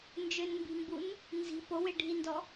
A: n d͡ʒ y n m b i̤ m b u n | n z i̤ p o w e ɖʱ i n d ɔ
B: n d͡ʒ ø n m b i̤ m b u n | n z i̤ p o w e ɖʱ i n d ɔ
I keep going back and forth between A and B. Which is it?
B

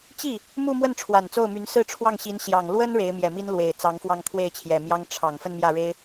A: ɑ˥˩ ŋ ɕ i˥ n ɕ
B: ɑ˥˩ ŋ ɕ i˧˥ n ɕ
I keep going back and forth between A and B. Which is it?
B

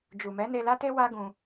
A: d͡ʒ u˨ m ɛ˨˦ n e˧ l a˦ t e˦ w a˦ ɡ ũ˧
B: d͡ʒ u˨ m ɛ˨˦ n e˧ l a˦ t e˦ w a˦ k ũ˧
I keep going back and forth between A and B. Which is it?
A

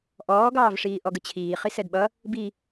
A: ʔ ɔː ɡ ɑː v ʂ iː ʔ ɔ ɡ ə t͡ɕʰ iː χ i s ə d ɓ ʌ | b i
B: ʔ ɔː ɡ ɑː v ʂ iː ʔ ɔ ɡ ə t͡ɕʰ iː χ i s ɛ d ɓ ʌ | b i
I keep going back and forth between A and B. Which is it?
B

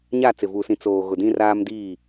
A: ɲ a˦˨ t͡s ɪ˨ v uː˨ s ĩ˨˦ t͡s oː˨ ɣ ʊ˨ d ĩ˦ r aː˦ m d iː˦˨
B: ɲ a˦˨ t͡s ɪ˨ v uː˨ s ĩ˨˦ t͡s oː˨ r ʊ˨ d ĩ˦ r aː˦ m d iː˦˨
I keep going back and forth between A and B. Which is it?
A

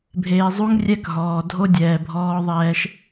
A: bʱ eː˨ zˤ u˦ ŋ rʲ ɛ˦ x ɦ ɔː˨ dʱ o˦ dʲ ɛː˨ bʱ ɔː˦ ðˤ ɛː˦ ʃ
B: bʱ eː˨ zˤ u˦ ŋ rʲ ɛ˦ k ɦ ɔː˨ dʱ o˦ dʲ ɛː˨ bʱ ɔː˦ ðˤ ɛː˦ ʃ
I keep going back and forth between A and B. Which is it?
B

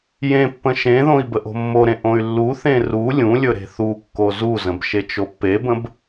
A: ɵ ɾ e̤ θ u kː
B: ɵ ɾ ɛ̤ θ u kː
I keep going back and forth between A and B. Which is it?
A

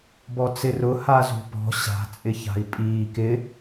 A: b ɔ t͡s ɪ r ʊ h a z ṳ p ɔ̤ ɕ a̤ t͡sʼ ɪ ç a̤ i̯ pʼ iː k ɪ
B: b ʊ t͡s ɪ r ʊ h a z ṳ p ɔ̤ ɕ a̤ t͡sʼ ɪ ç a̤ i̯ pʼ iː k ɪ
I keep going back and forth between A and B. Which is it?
A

